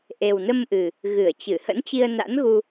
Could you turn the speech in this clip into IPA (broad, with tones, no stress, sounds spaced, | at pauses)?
ʔ e˨˩ w n ə˧ m ʔ ɨ˨˩ | ɣ ɨ˧˩ ə̯ t͡ɕ ɨ˧˩ h ə̰˧˥ n t͡ɕ i˧ ə̯ n a̰˧˥ n ɣ u˧